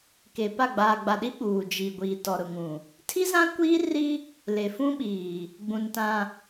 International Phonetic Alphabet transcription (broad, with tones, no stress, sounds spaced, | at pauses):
k e˨ p a˦˨ ɡ͡b aː˨ ɡ͡b a˨ ɗ i˦ ɓ uː˨ d͡ʒ i˨ ɡʷ i˨ t ɔ˨ ɾ ʊ˨ ŋ ũ˨ | tʰ i˦ z ã˦ kʷ iː˦ r i˦ | l e˨ f ũ˦ ɓ iː˨ | ɡ͡b ũ˨ n t ã˨